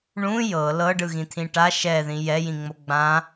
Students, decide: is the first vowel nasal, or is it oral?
nasal